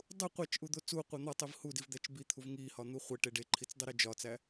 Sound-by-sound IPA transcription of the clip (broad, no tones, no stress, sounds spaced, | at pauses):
dˤ u qʷ æ t͡ʃ ʔ u d̪ o t͡s u qʷ e n̪ ɒ tˤ i v h u d i v d̪ æ t͡ʃ b i t̪ʰ u v ŋ i h ɒ n̪ u χʷ e ʈ e ɖ e ǃʰ i t͡s dˤ i ɾ e d͡ʒ ɒ t͡s æ